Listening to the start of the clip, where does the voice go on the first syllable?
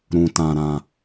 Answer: low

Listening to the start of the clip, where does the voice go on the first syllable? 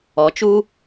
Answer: rising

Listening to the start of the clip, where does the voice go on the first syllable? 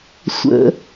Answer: low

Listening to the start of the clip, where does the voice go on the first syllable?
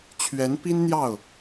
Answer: rising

